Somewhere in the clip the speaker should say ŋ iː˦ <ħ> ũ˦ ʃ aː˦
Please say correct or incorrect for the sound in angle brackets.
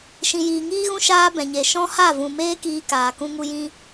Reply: incorrect